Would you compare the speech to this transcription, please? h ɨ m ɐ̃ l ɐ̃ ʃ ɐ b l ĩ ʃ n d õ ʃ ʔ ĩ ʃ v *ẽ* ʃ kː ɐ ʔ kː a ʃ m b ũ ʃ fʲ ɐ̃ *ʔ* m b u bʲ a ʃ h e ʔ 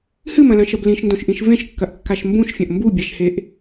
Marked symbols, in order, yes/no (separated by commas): yes, yes